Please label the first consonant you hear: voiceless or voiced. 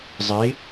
voiced